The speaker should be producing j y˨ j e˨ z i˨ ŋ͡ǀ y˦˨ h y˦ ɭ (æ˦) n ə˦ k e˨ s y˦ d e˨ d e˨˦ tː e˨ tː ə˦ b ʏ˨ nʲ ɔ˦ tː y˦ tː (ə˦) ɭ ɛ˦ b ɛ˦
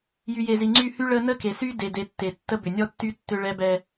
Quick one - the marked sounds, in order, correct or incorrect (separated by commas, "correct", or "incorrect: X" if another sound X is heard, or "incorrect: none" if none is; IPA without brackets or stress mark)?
incorrect: ə˦, incorrect: ʏ˦